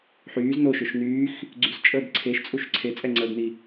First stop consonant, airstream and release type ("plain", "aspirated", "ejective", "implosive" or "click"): click